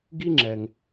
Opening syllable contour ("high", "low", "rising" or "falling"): high